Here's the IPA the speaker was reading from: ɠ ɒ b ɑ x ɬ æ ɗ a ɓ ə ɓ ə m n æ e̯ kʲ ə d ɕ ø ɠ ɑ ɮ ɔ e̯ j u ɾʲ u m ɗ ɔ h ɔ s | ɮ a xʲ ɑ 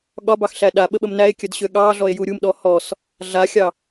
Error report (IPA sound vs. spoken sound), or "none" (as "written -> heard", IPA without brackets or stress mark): none